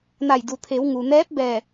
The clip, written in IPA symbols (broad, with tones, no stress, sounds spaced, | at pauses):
n a˧˩ j d u˩ t̪ʰ e˩˧ w ŋ u˩ n ɛː˧˥ p̚ b ɛː˧˩